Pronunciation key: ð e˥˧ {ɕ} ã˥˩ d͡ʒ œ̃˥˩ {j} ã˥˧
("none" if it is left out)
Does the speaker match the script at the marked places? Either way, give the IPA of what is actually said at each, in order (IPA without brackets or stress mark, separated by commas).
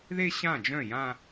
ɕ, j